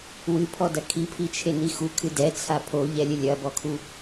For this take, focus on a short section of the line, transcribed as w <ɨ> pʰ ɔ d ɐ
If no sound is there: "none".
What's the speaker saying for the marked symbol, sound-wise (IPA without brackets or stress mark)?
ɨ